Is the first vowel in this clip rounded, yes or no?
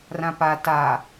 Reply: no